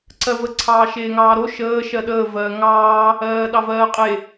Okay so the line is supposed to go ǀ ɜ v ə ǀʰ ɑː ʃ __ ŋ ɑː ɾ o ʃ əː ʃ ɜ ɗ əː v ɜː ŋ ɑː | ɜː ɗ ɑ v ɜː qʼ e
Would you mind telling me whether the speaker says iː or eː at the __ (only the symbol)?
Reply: eː